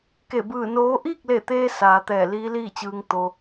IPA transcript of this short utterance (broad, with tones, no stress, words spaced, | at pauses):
ke˧˩ bɯː˧˩noː˧˥ ʔiː˥˨k̚le˧˩t̪eː˧ saː˩˧t̪ɛː˧˩ liː˧˥liː˥˨t͡ɕɯː˧ŋ t̪o˧